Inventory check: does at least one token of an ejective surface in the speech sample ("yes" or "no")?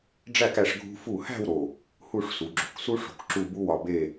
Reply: no